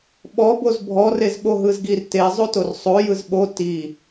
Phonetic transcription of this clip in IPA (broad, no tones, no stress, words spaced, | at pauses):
ɓɔboz bʱɔrez ɓoɦɯzɡir tezˤotor sˤo jɯzɓo ti